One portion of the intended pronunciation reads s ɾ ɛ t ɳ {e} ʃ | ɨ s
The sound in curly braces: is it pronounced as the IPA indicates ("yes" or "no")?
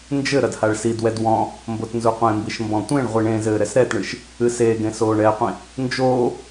no